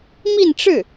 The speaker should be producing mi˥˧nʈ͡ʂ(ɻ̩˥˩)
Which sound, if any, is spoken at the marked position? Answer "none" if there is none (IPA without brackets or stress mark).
ɻ̩˥˩